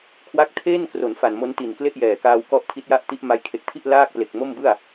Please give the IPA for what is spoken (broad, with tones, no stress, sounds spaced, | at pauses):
kʰ w a˦˥ k̚ tʰ eː˥˩ n k r o˩˦ n f a˨˩ n m o˦˥ n t i˨˩ n k l e˥˩ ʔ j ɛː˨˩ k aː˧ w k ɔ˦˥ ʔ tʰ i˦˥ t̚ j a˥˩ ʔ t i˦˥ ʔ m a˧ j kʰ e˨˩ k̚ tʰ i˥˩ ʔ l aː˥˩ k̚ p l e˨˩ k̚ m o˥˩ m b ɯ˥˩ a̯